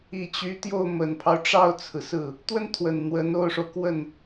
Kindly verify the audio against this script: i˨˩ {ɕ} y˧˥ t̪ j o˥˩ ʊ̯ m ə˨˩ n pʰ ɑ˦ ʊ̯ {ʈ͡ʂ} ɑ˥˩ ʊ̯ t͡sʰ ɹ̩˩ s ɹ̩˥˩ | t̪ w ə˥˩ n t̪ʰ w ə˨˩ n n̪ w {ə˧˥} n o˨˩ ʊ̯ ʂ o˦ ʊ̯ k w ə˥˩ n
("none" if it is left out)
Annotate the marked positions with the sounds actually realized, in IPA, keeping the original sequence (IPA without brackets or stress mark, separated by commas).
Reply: t͡ɕ, ʈ͡ʂ, ə˧˥